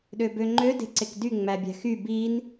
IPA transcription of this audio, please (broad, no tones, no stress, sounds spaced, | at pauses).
ɗ ø b ø ŋ͡ǃ ø d e̤ ǀ e k d y ŋ͡m æ bʲ æ̤ x y b i n